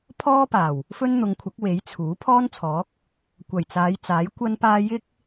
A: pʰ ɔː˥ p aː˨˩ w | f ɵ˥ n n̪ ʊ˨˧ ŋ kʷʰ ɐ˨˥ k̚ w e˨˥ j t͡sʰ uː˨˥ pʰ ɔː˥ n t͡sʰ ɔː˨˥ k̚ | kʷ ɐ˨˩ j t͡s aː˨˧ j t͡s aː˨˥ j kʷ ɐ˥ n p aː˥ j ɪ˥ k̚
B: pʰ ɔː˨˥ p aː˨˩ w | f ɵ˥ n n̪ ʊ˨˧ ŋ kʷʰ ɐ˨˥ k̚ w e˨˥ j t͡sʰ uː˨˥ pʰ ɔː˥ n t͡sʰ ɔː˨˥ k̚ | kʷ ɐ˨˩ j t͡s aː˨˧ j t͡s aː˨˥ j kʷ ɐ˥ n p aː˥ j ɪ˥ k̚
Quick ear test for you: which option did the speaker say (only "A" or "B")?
A